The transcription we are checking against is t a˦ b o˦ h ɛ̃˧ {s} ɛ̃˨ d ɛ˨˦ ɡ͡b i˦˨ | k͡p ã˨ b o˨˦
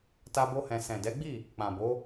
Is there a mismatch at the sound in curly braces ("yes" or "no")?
no